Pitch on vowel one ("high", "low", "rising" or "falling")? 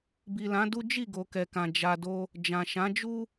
low